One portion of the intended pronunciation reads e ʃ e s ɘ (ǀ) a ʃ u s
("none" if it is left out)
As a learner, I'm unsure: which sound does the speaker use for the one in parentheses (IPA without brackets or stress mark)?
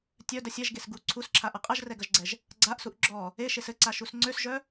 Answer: ǀ